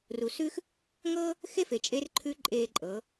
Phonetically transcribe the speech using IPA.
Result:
ru˩sʉː˥x | ŋɤː˥ | xe˥fe˩t͡ʃʼe˧˥rǃʰʉ˧˥ ǃʼeː˧ǃʼɤː˩˧

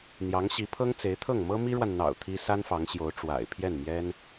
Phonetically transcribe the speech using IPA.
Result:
n̪jɑ˧˥ŋɕi˧˥ pʰɤ˥ŋ t͡se˧˥ɪ̯t̪ʰɤ˥˩ŋ mɤ˥mi˥ɻwa˨nn̪ɑ̰˨˩ʊ̯ t̪ʰi˥ sa˥nfɑ˧˥ŋɕjo˧˥ʊ̯ ʈ͡ʂwa̰˨˩ɪ̯ pʰjɛ˥˩nmjɛ˥n

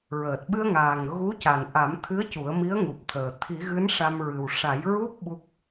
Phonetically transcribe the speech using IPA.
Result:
ɹəː˨˩t̚ɓɨ˧ə̯ŋaː˨˩ŋ ɣu˧˥ca˨˩n ʔa˨˩˦mt̪ʰɨ˧˥ə̯ cu˨˩˦ə̯mi˧˥ə̯ŋu˨˩p̚t̪ʰəː˨˩ t̪ʰi˨˩˦ɣɨ˧˥n ʂa˧mɹɨ˨˩w ʂa˨˩˦j ɹu˦˥p̚ ɓu˦˥k̚

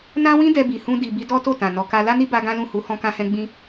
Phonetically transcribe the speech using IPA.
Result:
nã˦wĩ˦ dɛ˧bi˨hũ˧ di˨ bi˧dɔ˦to˦˨tã˨ nɔ˨ka˧ la˦ni˦ba˧ ɡã˦lũ˦˨hu˨˦ hɔ̃˧kã˧hɛ̃˧ ɡ͡bĩ˧

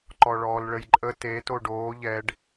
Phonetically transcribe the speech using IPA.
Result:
ǃɔɭɔːlɭəjǃʼə te toɖoː ʎɛɖ

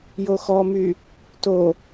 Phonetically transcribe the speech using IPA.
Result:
joxɔmy | to

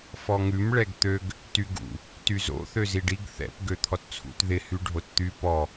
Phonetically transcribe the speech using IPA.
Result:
fɔŋʉm ɭɛɡt̪øɡ | tyɡṵ | tyzo̰ θøziɖiɡ θɛ̰p ɡøt̪ʰɔtt͡sʰṵt ðɪ hyɖʱott̪y pɔ

